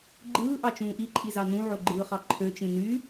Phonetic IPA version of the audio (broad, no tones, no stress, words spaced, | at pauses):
ɡ͡ǃɯː ʔɑt͡ʃũːʔiǃʼi zɑnũʕo ɡ͡ǃɯːχɑǃʰøt͡ʃĩ ny